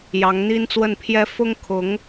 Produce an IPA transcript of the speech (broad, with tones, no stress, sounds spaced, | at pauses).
j ɑ˧˥ ŋ n̪ i˥ n t͡s w ə˥˩ n pʰ j ɛ˥ f ʊ˥ ŋ kʰ ʊ˧˥ ŋ